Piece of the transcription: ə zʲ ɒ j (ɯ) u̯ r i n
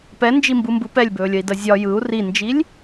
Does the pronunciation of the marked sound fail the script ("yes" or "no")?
no